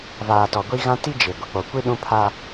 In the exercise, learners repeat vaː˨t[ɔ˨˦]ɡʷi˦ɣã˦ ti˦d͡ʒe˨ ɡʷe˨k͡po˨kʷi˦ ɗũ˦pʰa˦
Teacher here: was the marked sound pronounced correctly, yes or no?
no